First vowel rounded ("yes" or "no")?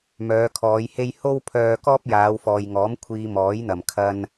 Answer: yes